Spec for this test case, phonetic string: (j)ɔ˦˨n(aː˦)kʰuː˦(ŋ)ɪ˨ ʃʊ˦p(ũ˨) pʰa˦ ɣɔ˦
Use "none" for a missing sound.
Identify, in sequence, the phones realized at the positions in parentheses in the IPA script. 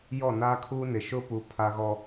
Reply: j, aː˦, n, u˨

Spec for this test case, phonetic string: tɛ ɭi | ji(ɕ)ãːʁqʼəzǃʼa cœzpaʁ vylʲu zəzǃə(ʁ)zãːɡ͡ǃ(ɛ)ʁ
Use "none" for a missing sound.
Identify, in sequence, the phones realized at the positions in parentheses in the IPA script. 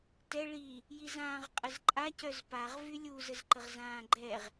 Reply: z, ʁ, ɛ

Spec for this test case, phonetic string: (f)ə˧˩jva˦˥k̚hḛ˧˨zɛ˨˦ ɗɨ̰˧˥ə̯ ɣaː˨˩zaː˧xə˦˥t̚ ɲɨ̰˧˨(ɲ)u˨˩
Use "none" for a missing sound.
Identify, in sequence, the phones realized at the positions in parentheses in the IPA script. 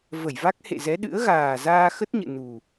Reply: v, n

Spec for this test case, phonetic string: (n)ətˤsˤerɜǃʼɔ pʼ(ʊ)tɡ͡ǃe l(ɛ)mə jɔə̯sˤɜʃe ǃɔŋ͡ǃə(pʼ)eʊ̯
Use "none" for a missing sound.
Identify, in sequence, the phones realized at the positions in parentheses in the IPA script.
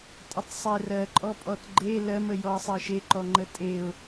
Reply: tʼ, ɔ, ɜ, tʼ

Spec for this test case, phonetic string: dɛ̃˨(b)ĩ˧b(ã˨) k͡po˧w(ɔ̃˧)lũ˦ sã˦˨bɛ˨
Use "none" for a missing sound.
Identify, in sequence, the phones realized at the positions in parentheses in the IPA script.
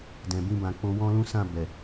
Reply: b, ã˨, ɔ̃˦

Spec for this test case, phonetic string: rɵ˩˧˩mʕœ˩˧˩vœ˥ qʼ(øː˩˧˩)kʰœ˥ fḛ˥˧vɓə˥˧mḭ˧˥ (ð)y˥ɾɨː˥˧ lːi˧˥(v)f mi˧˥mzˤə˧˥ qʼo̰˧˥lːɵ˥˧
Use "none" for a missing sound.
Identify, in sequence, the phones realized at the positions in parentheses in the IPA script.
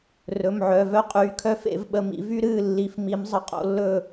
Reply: yː˩˧˩, v, none

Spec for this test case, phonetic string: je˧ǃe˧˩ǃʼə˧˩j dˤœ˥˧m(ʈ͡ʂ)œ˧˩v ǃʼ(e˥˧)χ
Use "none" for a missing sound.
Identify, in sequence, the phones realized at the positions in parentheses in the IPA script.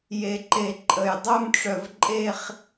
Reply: ʈ͡ʂ, e˥˧

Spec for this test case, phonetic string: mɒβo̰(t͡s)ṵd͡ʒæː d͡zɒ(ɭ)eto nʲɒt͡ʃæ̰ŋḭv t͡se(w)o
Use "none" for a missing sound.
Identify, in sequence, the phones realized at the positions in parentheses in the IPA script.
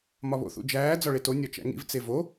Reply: θ, ɭ, v

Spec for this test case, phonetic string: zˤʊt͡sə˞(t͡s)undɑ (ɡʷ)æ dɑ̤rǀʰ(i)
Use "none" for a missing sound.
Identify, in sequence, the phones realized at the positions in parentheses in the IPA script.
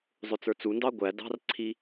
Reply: t͡s, ɡʷ, i

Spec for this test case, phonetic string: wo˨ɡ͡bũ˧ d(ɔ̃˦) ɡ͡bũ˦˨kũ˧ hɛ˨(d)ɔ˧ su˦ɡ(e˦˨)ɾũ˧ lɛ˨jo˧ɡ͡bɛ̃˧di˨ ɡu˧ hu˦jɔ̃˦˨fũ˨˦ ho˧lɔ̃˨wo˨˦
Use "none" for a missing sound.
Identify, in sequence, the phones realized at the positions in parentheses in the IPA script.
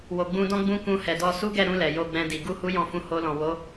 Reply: ɔ̃˦, d, ɛ˦˨

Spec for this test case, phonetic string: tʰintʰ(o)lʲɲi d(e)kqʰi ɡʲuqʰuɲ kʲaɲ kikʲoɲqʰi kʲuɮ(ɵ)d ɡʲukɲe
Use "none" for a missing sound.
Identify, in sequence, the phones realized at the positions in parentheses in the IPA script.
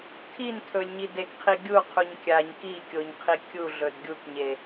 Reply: ɵ, e, ɵ

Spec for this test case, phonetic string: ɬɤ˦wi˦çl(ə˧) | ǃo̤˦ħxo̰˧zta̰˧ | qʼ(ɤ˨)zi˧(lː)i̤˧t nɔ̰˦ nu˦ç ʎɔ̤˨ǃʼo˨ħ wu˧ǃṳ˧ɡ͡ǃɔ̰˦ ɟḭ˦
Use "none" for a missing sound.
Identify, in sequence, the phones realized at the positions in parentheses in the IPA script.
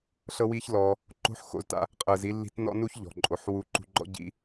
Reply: ɔ˧, ɤ˨, lː

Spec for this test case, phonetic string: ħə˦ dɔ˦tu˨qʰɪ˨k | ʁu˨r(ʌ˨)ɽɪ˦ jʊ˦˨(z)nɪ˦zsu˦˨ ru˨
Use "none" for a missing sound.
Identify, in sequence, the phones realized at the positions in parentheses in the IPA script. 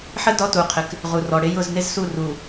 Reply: ɔ˨, z

